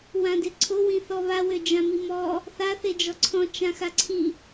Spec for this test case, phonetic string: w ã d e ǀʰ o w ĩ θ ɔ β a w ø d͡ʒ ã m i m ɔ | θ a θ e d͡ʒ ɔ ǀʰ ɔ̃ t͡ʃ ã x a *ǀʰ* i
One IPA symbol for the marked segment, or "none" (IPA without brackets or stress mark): ǀʰ